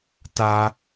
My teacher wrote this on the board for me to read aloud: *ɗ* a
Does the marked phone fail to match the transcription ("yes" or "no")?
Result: yes